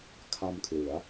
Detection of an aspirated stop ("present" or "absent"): present